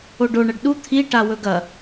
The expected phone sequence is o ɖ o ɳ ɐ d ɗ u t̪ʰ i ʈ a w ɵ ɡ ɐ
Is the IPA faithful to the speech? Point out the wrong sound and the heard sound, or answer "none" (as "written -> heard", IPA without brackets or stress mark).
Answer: d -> ɖ